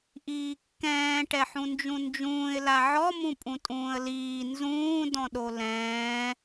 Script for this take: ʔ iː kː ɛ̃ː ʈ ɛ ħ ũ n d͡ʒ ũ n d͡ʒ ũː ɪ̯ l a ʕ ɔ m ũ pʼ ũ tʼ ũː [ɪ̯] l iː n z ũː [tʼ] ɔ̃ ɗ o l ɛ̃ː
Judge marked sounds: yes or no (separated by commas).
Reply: no, no